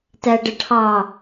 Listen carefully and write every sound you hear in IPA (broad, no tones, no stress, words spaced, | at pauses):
tæɖəʈʰɑ